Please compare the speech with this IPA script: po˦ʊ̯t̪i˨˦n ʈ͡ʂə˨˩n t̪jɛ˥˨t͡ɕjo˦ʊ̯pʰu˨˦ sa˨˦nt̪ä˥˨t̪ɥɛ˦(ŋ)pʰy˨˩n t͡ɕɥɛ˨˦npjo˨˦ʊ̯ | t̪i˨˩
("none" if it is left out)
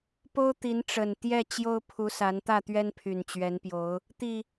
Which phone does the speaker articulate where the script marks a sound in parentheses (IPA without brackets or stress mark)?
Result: n